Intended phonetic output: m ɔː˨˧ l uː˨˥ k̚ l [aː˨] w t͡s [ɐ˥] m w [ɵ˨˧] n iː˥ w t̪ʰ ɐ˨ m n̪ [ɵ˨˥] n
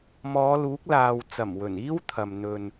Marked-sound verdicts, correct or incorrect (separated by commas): correct, incorrect, incorrect, incorrect